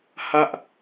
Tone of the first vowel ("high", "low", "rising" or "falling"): high